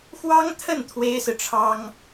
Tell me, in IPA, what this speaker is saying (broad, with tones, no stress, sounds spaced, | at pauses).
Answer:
x w ɑ˥ ŋ t̪ʰ ə˥˩ n t̪ʰ w e˥ ɪ̯ s ɹ̩˨ ʈ͡ʂʰ ɑ˥ ŋ